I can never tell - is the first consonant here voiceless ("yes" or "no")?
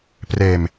yes